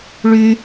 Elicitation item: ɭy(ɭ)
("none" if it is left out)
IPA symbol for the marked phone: none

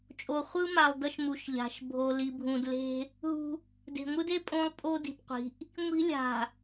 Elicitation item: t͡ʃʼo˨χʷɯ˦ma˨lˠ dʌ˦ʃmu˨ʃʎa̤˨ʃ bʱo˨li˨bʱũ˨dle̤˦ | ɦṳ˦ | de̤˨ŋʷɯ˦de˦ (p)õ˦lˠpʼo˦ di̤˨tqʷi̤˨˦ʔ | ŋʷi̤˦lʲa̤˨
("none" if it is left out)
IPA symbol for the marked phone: pʼ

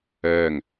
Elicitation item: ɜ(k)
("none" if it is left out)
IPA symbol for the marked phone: ŋ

